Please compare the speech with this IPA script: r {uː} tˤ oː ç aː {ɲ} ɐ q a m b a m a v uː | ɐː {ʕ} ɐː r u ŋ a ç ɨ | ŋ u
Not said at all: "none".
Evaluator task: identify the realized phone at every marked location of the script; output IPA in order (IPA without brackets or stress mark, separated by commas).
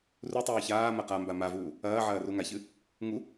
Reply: u, m, ʕ